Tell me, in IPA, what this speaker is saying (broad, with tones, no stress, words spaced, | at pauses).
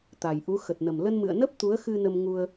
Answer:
t̪a˨˩jʔu˨˦ xə˨˩t̚nə˨˩m lə˧nmɨ̰˧˨ə̯nə˦˥p̚ t̪u˨˦ə̯xɨ˧ nə˧mŋu˧ə̯